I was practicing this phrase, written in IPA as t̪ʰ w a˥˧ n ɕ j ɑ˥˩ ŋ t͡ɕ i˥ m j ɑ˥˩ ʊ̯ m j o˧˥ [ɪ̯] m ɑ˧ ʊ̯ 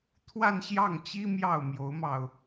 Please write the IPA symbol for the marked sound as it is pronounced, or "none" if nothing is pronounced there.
ʊ̯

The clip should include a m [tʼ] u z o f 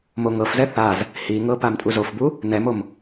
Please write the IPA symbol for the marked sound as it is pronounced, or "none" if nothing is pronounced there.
tʼ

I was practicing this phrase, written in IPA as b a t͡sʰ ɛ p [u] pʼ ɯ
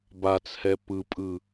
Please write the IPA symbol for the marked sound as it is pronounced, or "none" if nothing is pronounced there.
ɯ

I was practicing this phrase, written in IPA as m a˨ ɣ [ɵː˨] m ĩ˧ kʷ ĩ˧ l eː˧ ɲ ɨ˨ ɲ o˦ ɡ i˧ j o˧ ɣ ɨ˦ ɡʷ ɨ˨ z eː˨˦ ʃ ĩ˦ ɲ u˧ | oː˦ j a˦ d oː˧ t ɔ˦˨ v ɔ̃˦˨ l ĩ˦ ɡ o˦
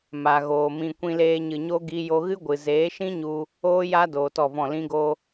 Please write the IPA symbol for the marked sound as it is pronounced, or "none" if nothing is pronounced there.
oː˨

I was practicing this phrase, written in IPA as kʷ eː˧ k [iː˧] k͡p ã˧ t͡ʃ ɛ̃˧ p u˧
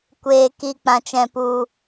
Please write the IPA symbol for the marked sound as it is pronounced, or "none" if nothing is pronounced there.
i˧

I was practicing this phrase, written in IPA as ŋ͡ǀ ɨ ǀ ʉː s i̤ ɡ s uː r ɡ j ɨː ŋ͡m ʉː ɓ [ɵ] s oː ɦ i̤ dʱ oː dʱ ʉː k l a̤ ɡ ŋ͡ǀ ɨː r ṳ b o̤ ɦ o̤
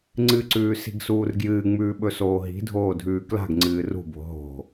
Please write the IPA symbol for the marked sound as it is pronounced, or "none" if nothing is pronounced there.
ɵ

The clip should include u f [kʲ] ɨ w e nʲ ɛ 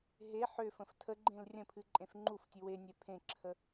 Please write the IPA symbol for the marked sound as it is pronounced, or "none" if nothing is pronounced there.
tʲ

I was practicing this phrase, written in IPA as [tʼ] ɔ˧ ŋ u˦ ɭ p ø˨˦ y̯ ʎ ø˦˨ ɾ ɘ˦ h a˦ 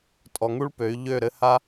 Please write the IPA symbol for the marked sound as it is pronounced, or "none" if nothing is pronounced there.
tʼ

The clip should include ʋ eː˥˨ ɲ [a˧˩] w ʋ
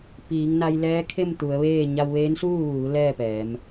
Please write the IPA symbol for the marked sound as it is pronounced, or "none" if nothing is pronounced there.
a˧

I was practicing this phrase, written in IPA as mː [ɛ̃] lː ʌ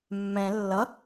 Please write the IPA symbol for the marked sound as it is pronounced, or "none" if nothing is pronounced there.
ɛ̃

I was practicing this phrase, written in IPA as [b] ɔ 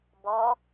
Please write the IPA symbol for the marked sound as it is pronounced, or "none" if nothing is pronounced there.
b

